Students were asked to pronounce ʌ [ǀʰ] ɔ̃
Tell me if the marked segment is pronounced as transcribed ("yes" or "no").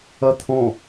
no